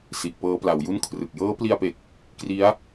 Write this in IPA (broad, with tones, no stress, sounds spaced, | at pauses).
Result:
s i˨˩ ʔ p ɤː˦˥ p l a˩˦ w j u˥˩ n kʰ r ɯ˨˩ k̚ j ɤː˦˥ p l i˧ a̯ p e˨˩ k̚ | k r i˦˥ a̯